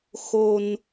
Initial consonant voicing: voiceless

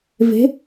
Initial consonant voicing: voiced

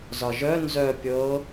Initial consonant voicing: voiced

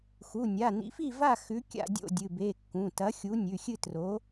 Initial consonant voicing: voiceless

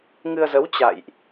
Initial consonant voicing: voiced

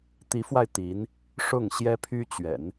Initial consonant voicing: voiceless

